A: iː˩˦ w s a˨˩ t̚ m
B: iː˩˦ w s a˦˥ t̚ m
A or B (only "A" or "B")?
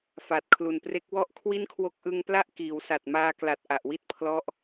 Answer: A